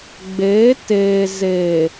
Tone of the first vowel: rising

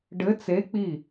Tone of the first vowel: rising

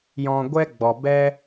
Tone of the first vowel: low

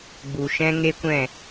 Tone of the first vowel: low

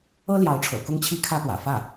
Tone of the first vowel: high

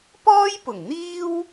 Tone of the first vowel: high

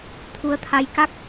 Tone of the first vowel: rising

